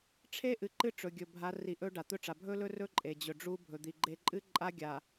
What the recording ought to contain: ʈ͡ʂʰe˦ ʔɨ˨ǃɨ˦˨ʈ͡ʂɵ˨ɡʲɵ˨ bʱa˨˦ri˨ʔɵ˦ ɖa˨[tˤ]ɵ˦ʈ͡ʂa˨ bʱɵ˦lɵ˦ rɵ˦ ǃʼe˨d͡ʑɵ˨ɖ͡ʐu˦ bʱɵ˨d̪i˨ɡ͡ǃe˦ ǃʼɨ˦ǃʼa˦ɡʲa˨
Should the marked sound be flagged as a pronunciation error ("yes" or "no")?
yes